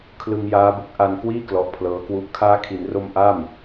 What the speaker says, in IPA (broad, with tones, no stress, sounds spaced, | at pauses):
kʰ l ɯ˧ ŋ j aː˦˥ b u˦˥ k̚ ʔ a˧ n k w iː˥˩ k l ɔ˦˥ ʔ pʰ l ɤː˦˥ k w u˥˩ ʔ kʰ aː˦˥ kʰ i˩˦ n r o˧ m ʔ a˥˩ m